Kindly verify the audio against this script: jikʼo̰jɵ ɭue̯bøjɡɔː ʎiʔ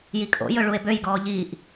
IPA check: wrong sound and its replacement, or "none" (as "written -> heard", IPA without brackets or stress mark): none